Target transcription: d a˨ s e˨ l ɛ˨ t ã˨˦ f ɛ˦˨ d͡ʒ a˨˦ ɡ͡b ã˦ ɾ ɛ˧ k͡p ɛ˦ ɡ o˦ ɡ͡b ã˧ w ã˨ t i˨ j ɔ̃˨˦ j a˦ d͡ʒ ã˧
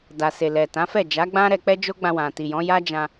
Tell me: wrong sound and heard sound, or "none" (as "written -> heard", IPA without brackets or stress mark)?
ɡ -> d͡ʒ